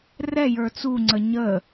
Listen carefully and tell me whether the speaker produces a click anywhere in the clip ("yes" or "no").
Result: yes